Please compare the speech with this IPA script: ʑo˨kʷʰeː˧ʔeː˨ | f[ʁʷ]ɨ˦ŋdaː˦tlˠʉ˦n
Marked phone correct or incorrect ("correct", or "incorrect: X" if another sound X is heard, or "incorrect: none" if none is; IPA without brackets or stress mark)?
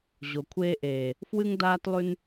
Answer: incorrect: w